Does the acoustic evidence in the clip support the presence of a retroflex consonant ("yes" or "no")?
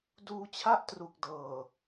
no